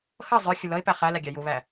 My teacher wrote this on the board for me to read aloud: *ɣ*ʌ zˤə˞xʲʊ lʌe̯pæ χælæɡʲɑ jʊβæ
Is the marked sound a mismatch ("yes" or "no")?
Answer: yes